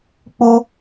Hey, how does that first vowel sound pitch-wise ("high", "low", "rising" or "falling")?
high